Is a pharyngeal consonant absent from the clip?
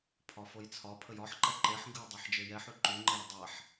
no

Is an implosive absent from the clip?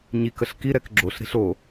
yes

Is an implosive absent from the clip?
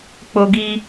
yes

